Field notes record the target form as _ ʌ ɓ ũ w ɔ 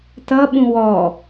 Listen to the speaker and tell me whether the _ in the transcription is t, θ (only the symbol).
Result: t